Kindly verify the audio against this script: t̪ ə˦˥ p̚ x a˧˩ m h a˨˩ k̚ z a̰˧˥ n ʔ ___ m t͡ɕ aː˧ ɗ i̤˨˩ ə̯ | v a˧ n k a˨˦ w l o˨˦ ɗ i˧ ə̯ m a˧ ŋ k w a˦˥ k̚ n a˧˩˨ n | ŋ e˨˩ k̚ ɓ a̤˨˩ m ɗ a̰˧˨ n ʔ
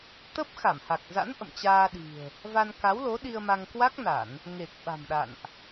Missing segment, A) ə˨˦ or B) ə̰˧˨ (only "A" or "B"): B